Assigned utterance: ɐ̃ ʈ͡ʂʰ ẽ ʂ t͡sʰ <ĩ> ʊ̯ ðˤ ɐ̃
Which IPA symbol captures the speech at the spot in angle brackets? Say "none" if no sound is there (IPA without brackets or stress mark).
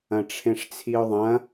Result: i